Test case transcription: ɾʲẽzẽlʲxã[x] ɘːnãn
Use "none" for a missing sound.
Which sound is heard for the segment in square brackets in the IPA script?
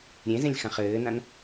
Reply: χ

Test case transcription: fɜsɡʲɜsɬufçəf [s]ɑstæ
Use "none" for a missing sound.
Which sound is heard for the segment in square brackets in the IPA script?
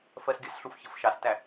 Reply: ʃ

